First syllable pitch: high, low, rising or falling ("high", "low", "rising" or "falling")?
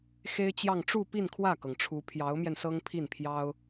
high